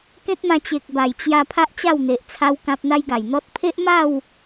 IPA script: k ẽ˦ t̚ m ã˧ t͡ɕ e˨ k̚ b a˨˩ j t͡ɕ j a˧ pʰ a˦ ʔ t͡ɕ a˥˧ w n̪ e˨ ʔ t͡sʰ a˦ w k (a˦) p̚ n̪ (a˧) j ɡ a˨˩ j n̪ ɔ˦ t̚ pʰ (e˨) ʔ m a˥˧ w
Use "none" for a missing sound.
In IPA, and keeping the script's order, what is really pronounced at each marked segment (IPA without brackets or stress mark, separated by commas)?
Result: ã˦, a˦, e˦